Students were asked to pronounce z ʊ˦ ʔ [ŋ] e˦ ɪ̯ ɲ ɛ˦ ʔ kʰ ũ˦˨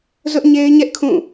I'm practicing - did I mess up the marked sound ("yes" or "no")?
yes